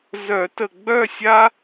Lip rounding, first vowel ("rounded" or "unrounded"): rounded